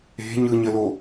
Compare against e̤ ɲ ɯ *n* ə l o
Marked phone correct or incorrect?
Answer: incorrect